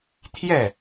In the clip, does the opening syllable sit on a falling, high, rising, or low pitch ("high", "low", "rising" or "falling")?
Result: falling